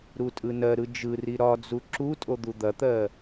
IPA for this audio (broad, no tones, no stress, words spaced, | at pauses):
ɾutʼɯnɜɾɯ d͡ʒɯri ɾɒd͡zu ǁutʼo d̪ud̪ɐt̪ɜ